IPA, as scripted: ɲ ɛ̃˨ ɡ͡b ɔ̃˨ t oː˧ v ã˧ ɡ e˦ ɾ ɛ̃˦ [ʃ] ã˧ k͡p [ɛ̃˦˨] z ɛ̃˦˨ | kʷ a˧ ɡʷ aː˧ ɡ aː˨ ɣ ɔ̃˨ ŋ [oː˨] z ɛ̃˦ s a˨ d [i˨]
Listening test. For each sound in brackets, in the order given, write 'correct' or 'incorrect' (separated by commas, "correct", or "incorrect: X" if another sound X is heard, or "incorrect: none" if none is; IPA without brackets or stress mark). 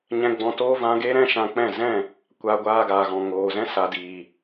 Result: correct, correct, correct, incorrect: iː˨